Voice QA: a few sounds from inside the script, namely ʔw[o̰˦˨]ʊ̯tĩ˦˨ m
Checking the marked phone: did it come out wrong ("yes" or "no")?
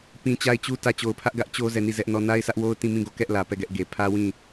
yes